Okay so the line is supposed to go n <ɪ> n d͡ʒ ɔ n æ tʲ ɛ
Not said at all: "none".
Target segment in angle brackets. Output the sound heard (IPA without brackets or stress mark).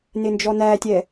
ɪ